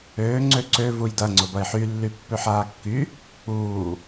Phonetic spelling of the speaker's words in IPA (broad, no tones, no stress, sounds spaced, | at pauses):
øː ŋ͡ǀ ø ǀ ø v u j d ɐ ŋ͡ǀ ʊ b ɐ ɪ̯ ħ y lː y pː ø ħ aː kː y | k͡p uː